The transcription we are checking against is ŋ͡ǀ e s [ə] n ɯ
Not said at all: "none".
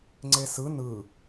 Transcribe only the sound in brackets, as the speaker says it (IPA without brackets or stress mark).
ɯ